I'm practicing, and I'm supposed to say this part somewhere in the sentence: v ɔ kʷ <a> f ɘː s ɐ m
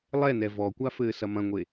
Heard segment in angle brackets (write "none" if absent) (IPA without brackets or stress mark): a